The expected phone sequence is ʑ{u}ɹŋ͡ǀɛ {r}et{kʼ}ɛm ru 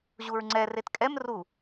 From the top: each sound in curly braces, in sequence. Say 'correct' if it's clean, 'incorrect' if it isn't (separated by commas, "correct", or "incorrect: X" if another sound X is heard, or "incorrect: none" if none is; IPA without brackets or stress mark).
correct, correct, correct